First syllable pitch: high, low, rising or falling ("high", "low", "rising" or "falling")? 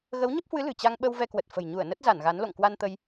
rising